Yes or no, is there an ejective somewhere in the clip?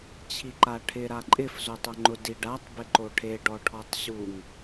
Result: yes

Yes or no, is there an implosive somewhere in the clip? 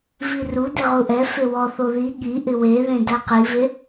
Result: yes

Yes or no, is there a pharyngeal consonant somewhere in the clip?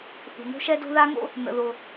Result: no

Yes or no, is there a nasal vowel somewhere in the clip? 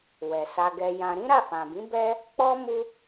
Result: yes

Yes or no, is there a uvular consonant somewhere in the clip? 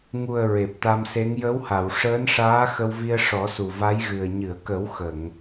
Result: no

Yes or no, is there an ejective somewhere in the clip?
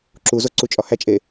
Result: yes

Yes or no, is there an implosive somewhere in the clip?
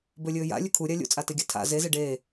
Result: no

